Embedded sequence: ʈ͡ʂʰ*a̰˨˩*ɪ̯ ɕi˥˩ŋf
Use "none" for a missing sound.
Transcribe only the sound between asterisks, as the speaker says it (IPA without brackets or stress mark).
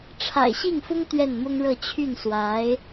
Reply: a̰˨˩